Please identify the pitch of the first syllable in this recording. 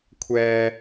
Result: low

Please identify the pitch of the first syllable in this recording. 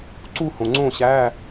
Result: falling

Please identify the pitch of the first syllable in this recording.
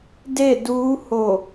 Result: falling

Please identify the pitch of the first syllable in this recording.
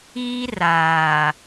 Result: high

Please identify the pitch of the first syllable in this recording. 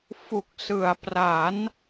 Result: low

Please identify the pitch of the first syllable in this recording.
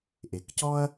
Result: low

